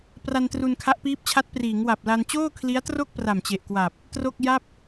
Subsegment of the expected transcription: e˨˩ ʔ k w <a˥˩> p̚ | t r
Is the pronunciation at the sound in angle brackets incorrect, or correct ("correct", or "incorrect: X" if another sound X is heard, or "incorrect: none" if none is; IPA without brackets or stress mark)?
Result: incorrect: a˨˩